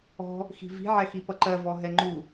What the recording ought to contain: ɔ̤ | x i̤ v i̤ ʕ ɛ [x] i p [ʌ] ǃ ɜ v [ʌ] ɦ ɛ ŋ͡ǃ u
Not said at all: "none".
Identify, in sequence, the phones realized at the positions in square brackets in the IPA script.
x, ʌ, ɔ

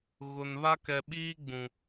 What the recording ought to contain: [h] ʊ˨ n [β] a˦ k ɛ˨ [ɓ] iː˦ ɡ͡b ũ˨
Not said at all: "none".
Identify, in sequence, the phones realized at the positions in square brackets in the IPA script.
ɣ, β, ɓ

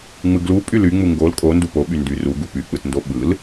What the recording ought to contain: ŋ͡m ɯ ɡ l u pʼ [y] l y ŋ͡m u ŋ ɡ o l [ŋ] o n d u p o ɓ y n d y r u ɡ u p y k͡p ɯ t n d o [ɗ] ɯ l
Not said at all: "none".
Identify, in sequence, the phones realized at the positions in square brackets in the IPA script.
y, kʼ, ɓ

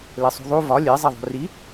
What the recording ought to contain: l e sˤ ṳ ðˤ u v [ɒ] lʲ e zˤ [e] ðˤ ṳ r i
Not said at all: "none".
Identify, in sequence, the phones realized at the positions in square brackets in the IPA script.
ɒ, e

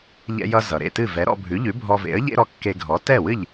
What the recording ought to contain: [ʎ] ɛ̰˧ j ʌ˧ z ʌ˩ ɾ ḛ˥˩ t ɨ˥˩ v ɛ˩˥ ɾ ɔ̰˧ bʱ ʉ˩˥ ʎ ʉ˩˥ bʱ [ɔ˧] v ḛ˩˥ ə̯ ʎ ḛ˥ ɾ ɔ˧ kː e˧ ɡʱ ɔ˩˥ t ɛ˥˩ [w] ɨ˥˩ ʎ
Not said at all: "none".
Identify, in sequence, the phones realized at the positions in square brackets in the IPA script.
ʎ, ɔ˧, w

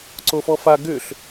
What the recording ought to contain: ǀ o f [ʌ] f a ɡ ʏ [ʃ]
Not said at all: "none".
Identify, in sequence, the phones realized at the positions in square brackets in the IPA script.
ɔ, ɬ

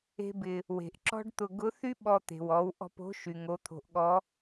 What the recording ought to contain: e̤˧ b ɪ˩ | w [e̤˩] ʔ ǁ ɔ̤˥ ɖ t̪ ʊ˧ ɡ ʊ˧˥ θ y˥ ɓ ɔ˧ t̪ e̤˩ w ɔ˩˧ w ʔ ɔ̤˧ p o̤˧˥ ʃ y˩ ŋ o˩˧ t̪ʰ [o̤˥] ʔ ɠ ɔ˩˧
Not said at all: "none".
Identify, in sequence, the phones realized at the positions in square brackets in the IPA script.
e̤˩, o̤˩

